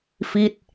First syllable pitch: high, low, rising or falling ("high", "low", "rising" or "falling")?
falling